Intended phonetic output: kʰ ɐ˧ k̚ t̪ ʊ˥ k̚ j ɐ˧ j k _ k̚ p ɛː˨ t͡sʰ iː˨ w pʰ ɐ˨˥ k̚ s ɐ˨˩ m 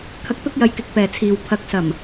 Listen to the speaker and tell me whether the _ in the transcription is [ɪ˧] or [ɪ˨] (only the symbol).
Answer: ɪ˧